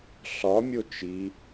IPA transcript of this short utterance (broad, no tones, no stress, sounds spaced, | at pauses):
ɬ ɒ mʲ o t͡ʃ i